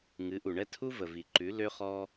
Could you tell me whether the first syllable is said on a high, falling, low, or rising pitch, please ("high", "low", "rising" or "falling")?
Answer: rising